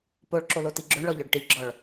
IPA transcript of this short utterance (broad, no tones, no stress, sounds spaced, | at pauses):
p o ɭ ǁ o l o t i ɡ͡ǁ o ɳ ɭ ɔ ʎ œ ɖ ʈ i ɡ͡ǁ ɔ ɭ